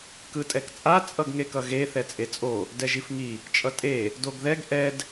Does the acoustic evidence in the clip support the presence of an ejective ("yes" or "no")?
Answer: yes